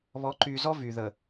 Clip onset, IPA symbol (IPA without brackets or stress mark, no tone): β